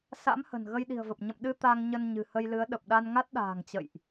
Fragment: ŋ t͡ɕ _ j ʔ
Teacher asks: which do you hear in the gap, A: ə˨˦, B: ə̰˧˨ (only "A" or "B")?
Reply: B